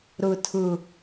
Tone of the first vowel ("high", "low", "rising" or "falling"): low